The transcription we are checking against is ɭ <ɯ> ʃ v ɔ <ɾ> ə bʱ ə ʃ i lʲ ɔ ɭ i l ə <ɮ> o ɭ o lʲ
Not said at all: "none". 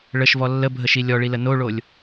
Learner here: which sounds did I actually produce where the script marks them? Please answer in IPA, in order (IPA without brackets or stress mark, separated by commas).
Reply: ə, lː, n